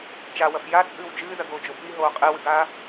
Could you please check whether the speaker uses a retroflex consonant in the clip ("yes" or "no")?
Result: no